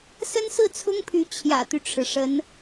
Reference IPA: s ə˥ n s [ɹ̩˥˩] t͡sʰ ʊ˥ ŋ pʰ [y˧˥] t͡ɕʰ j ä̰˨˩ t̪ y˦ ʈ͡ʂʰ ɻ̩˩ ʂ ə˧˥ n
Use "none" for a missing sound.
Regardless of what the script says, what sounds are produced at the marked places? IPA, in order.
ɹ̩˥˩, y˧˥

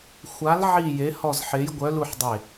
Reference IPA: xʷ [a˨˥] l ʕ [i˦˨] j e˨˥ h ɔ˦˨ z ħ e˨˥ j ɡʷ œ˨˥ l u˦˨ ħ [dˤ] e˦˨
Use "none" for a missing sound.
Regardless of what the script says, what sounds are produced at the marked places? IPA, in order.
a˨˥, i˦˨, dˤ

